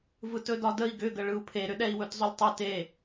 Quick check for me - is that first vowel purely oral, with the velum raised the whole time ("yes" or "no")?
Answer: yes